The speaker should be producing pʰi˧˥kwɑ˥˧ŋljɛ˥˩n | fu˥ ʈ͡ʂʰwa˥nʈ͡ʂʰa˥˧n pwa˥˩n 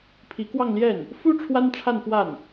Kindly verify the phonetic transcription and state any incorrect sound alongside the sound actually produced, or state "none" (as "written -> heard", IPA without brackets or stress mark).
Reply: none